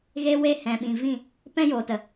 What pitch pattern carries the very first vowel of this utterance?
high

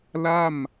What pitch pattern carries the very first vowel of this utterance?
falling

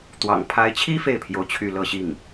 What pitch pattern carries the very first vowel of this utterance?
low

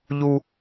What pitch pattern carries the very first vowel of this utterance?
high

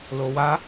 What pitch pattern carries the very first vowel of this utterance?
high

